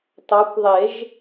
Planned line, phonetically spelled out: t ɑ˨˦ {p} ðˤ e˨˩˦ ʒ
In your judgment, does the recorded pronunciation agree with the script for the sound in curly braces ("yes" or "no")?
no